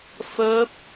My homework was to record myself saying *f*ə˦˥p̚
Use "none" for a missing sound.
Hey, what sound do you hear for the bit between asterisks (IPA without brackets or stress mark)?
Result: f